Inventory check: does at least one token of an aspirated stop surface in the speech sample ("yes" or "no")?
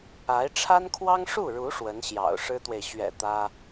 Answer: yes